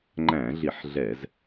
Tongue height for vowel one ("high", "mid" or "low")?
low